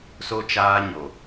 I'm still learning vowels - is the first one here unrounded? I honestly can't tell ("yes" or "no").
no